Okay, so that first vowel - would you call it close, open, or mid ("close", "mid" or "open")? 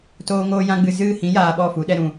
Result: mid